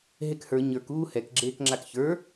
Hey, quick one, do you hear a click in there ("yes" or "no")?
yes